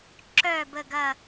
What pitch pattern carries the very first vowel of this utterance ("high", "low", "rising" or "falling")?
falling